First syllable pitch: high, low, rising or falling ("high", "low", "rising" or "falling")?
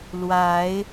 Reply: rising